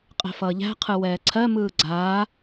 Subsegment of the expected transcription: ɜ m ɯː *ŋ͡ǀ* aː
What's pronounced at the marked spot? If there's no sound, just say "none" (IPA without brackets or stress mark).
ɡ͡ǀ